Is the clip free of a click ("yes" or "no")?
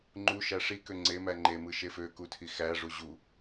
no